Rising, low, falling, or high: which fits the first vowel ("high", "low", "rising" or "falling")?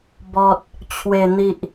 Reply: low